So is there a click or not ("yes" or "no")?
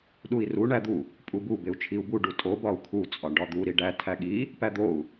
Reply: no